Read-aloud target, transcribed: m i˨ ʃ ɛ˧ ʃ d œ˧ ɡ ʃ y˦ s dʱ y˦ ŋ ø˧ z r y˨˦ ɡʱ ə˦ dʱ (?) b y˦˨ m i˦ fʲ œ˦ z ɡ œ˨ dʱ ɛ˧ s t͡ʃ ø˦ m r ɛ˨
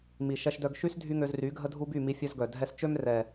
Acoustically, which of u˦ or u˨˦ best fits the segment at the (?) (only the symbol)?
u˦